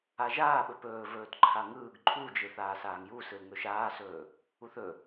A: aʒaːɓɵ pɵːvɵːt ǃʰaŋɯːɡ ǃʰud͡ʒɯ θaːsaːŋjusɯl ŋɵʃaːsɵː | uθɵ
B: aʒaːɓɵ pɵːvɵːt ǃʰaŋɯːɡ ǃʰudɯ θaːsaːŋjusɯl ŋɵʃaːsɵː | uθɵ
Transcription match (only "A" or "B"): A